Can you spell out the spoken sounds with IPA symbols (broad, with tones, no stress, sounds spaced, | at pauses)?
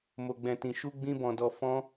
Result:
m o˨ ɡ͡b ɛ̃˨ t ĩ˨ ʃ u˧ ɡ͡b ĩ˧ b ɔ̃˨ d ɔ˨ f ɔ̃˧